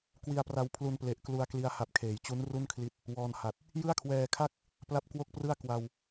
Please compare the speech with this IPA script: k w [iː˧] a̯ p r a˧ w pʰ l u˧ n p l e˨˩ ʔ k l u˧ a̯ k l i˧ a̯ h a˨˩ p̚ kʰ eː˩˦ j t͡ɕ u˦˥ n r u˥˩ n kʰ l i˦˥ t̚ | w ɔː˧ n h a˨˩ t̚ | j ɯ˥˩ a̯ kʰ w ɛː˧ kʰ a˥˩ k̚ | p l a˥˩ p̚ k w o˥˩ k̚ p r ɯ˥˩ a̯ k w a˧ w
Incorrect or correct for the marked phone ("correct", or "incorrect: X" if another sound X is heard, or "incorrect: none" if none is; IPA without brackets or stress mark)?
incorrect: i˧